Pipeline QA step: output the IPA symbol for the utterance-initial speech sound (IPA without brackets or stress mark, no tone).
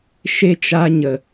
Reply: ʃ